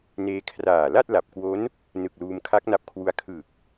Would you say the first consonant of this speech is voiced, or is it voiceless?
voiced